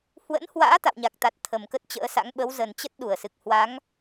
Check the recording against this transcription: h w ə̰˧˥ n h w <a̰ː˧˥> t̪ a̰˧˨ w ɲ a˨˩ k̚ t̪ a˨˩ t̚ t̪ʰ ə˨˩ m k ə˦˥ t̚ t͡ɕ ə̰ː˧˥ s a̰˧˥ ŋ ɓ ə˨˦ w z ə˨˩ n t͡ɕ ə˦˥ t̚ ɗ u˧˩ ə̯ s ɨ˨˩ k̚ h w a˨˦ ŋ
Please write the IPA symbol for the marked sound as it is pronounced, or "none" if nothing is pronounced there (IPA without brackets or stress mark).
a̰ː˧˥